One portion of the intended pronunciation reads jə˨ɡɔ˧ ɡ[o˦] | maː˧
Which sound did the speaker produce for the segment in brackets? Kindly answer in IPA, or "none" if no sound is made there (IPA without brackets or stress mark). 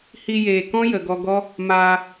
ɔ˦